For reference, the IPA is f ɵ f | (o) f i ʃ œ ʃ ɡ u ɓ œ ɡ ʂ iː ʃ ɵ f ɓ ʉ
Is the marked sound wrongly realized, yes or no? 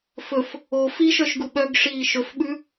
no